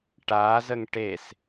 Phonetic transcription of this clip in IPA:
ʈazəŋ ʈes

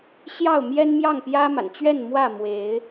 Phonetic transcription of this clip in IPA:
ɕjɑ˥˨ʊ̯mjɛ˦n mjɑ˥˨ŋpjä˦ma̰˨˩n t͡ɕɥɛ˥˨nmwä˥˨ mwe˨˦ɪ̯

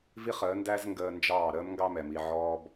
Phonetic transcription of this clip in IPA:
vi˦χəː˨˦ndæ˦z ŋɡəː˧nd͡ʒɑː˦˨ ɾəː˦mŋɡɑ˦mɛ˨mi˧ ʕɔː˦b

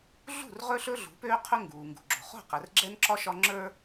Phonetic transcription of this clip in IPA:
ɮṳ˦˨r ʁɵ˦ɬɵ˦ ɮṳ˨˦pøː˦qʰɵ˦ ŋɡuː˨ŋɡṳ˨ɡ͡ǁo̤˨ χo̤˦˨qɛ˨rɡ͡ǁɛ˦nǁɒ˦ ʃɒ˦ŋ͡ǁə˞˦

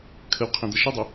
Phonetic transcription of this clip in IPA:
kʰəwqʰẽd̪ɐ ʃədˤɐ

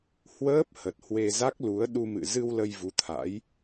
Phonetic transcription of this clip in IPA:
hwəː˦˥p̚ hə˨˩t̚ hwe˧za˦˥k̚lu˨˦ə̯ ɗu˧mɨ̰˧˨ zɨ˧w lə˧jvu˨˦t̪ʰa̰˧˥j

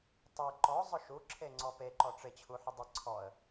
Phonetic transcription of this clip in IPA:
tˤe ǃɔ zˤʊʃu ǁʰeŋ͡ǀɔpe ǃɔʈ͡ʂɪ t͡ɕʰuħʊdˤɪ ǀʰɔə̯

